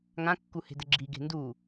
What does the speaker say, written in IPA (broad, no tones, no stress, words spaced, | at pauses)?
ŋãkːuhe̤dɘ ɡ͡ǁiɡe̤ ndu